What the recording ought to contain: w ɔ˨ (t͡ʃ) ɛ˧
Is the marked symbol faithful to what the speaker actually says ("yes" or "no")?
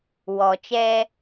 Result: yes